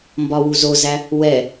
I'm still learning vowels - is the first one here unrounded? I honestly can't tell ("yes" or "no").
no